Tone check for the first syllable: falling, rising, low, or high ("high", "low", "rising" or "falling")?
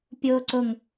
low